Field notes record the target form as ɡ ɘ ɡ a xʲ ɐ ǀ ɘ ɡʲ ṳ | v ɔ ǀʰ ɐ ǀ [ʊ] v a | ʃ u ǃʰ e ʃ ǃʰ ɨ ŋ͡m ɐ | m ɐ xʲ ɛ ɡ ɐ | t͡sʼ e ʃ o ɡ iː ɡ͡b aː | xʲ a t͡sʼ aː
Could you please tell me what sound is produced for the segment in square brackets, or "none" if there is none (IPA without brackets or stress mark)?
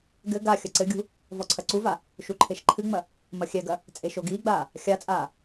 u